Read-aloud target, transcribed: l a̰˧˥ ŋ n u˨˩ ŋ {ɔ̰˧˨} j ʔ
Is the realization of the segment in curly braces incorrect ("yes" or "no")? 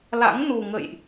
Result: yes